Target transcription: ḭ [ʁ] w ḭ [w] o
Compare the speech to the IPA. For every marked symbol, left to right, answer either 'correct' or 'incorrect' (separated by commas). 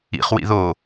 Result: incorrect, incorrect